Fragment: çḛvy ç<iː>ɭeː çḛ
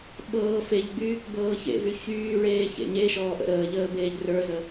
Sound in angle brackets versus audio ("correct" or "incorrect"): incorrect